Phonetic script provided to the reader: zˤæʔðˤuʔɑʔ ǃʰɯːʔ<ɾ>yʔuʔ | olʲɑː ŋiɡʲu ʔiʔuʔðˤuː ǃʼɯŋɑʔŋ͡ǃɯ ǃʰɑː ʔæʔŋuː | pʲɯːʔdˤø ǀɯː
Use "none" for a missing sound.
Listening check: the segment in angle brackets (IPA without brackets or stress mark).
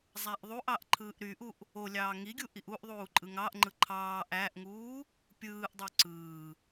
ɾ